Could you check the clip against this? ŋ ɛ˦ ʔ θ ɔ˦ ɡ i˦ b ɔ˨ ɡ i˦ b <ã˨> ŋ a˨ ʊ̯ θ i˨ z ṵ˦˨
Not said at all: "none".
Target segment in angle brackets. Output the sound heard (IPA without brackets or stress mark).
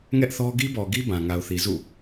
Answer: ã˨